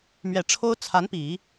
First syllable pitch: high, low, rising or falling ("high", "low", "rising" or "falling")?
low